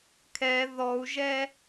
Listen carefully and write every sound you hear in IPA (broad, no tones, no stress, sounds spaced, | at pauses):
kʰ ɛ ð ɔ u̯ ʒ ɛ